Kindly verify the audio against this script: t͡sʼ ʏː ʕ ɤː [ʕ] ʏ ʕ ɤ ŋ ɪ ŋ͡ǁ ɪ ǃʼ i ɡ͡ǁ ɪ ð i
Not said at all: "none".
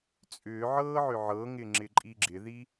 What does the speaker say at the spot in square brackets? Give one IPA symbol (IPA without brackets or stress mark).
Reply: ʕ